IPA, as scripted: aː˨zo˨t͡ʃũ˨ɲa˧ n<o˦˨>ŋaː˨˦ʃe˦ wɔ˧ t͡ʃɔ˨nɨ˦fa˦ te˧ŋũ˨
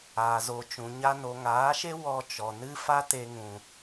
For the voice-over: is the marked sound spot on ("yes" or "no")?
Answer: no